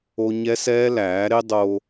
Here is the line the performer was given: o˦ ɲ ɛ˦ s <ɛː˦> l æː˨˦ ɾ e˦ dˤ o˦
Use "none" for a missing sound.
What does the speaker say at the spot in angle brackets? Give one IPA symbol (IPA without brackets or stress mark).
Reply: ɛː˦